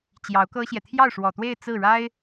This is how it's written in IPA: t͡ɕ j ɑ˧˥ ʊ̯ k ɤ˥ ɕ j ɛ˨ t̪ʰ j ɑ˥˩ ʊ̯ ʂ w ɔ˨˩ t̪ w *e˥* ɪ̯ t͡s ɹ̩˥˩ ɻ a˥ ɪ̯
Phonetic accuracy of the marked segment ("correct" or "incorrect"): incorrect